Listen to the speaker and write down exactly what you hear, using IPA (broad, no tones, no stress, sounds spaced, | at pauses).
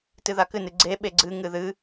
t ɨ ð a k ɨ n ɨ ɡ͡ǀ e ɓ e ɡ͡ǀ ɨ ŋ ɨ ð ɨ